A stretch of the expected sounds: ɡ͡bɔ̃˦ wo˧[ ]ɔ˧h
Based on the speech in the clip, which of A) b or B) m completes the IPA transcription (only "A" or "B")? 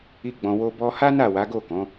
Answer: A